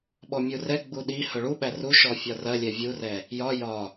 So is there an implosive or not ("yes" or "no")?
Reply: yes